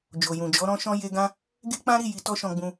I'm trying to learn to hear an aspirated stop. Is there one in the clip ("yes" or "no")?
no